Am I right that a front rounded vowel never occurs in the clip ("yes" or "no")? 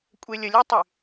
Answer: no